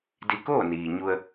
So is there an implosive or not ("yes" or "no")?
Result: no